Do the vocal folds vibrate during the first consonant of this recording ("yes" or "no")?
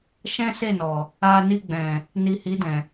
no